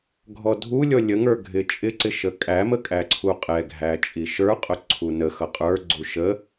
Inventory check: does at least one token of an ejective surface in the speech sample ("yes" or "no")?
yes